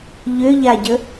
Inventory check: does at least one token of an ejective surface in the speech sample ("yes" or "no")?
no